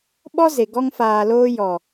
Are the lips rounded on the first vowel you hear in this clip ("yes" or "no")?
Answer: yes